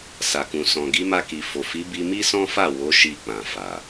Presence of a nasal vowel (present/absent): present